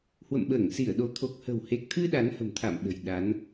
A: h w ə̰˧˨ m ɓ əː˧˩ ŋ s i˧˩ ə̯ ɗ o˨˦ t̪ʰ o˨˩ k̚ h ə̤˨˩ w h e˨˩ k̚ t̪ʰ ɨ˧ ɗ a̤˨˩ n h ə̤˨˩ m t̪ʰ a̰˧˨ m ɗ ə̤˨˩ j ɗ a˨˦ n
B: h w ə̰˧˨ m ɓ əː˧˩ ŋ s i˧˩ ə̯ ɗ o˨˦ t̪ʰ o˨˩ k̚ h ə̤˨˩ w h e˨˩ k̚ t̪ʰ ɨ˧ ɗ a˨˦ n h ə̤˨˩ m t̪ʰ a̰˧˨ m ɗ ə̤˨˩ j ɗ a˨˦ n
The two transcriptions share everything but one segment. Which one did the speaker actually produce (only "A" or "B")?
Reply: B